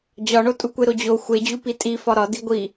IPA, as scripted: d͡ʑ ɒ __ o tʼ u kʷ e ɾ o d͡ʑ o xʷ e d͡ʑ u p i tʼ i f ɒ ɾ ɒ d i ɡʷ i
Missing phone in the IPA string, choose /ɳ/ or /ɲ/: ɳ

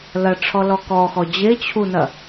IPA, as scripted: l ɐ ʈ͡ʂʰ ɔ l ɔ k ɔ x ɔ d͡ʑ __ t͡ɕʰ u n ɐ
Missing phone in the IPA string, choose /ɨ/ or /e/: e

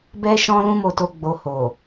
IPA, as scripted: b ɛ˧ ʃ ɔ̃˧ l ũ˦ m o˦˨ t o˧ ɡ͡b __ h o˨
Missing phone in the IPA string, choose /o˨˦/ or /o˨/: o˨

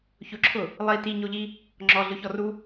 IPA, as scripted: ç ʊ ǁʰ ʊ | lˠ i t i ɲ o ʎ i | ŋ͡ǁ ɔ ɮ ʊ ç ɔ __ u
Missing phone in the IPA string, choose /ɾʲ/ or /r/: r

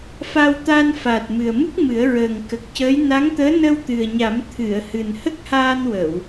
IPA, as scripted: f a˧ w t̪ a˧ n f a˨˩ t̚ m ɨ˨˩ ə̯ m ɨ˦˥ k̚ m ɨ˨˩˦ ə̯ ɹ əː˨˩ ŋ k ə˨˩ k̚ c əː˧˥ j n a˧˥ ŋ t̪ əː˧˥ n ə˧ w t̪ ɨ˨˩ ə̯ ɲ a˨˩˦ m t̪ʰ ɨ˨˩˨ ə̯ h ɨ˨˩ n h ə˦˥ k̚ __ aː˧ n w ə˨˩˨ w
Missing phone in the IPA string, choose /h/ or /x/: h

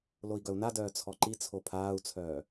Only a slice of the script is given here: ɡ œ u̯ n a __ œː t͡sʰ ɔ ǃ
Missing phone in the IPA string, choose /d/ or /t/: d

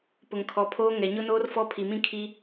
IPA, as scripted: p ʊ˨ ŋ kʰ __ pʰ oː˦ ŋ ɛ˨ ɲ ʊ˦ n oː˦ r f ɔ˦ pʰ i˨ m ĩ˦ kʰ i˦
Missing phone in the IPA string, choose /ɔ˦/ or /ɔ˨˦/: ɔ˨˦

